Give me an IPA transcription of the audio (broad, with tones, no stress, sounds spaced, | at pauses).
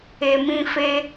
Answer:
e˨ m ĩ˧ f e˧